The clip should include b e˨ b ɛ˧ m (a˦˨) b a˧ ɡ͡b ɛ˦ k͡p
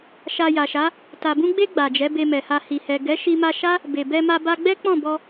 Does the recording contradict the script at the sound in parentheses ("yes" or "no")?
yes